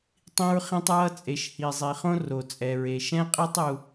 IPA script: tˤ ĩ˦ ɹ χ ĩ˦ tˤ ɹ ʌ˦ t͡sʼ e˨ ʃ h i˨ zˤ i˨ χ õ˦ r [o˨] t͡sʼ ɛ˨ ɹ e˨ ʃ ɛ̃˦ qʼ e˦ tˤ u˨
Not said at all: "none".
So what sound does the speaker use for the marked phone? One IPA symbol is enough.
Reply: o˨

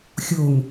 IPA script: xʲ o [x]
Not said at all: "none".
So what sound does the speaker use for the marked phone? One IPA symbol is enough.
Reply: ŋ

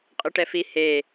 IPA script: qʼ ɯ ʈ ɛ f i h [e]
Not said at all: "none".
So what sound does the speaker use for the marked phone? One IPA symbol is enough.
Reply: e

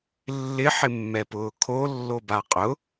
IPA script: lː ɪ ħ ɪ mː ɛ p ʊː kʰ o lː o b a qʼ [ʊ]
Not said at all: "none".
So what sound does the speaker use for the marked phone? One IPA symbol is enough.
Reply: ʊ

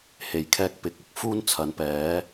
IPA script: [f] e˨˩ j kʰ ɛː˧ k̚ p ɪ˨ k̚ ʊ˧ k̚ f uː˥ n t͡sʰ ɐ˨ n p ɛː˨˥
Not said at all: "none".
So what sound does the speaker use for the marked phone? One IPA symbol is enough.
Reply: h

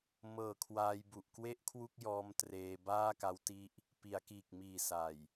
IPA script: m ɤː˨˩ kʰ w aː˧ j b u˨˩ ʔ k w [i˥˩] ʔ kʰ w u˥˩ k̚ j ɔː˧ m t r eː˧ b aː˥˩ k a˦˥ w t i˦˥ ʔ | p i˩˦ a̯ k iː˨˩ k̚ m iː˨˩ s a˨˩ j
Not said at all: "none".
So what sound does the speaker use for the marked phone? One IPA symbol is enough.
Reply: e˥˩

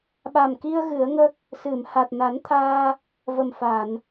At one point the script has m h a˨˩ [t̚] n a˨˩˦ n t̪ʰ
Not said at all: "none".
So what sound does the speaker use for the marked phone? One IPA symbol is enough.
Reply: t̚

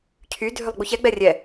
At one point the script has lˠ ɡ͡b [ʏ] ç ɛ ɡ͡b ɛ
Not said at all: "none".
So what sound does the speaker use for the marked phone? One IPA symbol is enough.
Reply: u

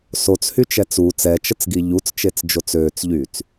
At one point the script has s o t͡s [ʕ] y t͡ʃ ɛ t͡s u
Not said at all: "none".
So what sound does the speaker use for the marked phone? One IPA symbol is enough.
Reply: h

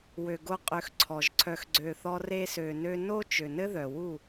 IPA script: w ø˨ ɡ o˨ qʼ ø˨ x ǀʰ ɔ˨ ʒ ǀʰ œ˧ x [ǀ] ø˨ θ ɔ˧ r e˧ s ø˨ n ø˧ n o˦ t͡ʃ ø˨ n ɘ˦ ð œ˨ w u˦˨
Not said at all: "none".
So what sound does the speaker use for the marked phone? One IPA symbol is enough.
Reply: ɡ͡ǀ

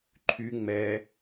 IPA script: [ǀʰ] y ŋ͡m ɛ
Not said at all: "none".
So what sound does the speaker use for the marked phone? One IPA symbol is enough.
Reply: ǃʰ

